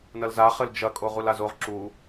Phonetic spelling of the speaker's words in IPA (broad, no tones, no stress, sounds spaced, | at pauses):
n ɐ l z a χ ɘ l d͡ʒ ɐ kʼ o ʁ u l a z o ʁ ǁ u